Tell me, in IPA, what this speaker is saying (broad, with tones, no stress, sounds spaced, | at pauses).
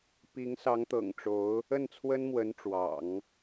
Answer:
p i˧˥ ŋ s ɑ˧˥ ŋ t̪ ɤ̰˨˩ ŋ ʈ͡ʂ o˧˥ ʊ̯ | ə˥˩ n t͡sʰ w ə˥ n m w ə˧˥ n ʈ͡ʂ w ɑ̰˨˩˦ ŋ